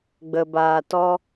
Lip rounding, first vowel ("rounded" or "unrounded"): unrounded